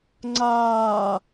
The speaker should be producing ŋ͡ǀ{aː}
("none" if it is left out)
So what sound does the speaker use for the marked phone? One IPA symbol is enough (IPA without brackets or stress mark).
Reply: aː